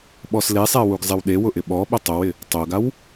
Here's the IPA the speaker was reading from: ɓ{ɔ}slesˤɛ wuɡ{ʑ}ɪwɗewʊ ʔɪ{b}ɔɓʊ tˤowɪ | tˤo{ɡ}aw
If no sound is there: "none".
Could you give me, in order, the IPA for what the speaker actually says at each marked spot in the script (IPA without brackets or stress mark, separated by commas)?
ɔ, zˤ, ɓ, ɡ